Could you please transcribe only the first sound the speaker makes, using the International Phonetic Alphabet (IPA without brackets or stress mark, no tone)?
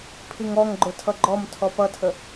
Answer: pʰ